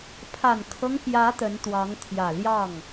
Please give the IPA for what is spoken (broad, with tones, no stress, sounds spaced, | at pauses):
pʰ a˨˩ n kʰ ɤ˦ ŋ p j ä˧˥ t̪ ə˧˥ n t̪ w ɑ˧˥ ŋ t̪ʰ j ä˨˩ l j ɑ˥˩ ŋ